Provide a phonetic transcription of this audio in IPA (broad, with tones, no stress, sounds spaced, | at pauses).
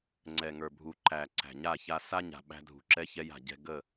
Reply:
ŋ͡ǀ ɛ˨ ŋ ə˞˨ bʱ u˨ ǃ æ˨ ǀ æ̤˨ ɲ a˦˨ ç a˦ s a˦ ɲ a̤˨ ɓ æ̤˦ dʱ ṳ˨ ǁ ɛ˦ ç ɛ˦ j a̤˨ ɟ ɛ̤˦ ɡ ə˦˨